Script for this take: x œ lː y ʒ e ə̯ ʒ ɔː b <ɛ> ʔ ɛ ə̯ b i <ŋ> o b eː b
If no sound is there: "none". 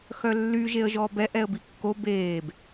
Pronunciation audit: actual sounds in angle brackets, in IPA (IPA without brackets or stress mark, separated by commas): ɛ, kː